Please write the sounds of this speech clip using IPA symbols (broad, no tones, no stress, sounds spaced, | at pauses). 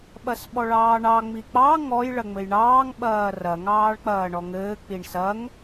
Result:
ɓ ɐ s ɓ ɔ ɭ ɑː ɳ ɑ ŋ͡m i k͡p ɑ ŋ ɔ j ɭ ɐ ŋ͡m ɘ j ɳ ɑː ŋ ɓ ɐː r ɐ ŋ ɑː ɭ k͡p ɐː ɳ ɔ ŋ ɘː k͡p i ɳ s ɐ ŋ